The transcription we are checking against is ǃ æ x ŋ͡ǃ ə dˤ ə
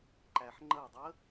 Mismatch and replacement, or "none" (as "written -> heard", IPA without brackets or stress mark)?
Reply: x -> ħ